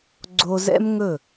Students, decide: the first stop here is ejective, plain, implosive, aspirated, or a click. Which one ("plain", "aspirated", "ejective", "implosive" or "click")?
click